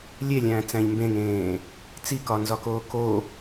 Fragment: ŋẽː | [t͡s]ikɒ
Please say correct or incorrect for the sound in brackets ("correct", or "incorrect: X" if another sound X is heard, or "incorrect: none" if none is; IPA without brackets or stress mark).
correct